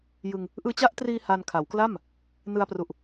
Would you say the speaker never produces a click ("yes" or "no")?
yes